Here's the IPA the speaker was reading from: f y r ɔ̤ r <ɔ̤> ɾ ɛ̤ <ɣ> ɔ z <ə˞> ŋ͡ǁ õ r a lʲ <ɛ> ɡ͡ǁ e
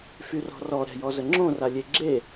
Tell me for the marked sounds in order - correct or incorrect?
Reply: incorrect: ɔ, incorrect: j, incorrect: ə, incorrect: e

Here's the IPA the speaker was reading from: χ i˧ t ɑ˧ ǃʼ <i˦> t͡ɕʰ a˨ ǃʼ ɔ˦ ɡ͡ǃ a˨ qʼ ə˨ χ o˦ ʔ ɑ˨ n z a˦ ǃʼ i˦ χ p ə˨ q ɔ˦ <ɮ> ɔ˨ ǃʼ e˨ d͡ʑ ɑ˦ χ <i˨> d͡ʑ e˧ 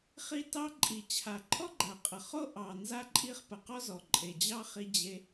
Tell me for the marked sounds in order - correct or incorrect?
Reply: incorrect: i˨, incorrect: z, incorrect: i˧

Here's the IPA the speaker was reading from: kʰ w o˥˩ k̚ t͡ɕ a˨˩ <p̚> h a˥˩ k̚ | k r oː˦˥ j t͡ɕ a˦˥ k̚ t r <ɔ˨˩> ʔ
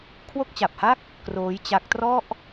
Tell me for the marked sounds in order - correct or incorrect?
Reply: correct, incorrect: ɔ˥˩

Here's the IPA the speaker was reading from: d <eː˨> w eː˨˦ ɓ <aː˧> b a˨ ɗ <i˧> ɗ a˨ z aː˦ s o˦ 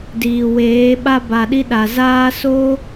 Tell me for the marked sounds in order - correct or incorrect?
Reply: incorrect: iː˨, incorrect: a˧, correct

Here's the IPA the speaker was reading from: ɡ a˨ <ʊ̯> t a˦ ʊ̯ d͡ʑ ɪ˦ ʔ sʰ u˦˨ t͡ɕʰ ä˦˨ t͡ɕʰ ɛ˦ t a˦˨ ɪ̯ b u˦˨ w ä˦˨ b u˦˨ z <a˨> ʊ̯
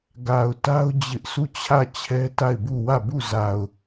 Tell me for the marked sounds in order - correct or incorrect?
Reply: correct, correct

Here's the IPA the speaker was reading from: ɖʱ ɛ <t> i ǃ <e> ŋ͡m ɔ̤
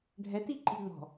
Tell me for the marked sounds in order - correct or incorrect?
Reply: correct, incorrect: i

